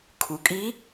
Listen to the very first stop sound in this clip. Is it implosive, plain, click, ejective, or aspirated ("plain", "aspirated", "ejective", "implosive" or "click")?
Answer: aspirated